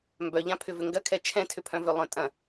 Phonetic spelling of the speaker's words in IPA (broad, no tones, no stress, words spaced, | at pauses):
mbœʎãpʰʏvʏ ŋɡɐkʰɛ t͡ʃʰɛ̃tʰʏpʰœ̃vø lˠœ̃tʼɐ̃